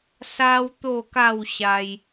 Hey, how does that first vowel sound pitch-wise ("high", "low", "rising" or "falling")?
high